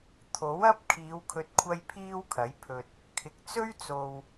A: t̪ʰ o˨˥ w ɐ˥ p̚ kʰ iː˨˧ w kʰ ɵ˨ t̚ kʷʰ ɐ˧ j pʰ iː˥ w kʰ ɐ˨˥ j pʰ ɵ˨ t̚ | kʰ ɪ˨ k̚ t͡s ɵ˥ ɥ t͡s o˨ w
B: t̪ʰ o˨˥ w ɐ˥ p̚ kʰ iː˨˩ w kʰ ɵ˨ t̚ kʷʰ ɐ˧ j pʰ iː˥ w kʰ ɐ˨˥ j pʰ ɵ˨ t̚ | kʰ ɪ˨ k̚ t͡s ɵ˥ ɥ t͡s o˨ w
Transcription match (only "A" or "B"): A